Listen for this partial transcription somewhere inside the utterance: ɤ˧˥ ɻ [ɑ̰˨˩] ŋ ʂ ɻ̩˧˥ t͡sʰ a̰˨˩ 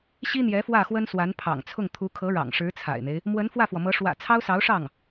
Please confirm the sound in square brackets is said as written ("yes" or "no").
yes